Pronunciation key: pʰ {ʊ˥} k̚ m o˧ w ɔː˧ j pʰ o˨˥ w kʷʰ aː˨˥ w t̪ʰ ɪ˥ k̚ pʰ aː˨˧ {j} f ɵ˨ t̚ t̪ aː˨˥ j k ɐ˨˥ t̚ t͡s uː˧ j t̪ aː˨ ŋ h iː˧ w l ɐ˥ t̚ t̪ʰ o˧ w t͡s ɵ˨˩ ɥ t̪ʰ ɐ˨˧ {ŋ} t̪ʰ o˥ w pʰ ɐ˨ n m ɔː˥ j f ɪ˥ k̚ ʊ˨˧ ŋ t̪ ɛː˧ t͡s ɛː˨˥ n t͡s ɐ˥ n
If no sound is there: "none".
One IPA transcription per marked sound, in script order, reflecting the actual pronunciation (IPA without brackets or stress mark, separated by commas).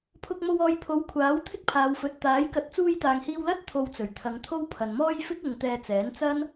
ʊ˧, w, ŋ